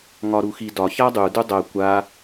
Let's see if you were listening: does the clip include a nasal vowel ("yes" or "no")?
no